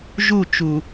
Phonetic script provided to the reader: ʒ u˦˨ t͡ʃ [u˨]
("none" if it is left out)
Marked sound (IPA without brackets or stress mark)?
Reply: u˨